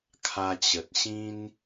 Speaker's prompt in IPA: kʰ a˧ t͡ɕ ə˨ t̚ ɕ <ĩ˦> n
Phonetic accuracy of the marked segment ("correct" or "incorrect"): correct